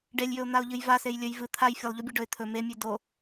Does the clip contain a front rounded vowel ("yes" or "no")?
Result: no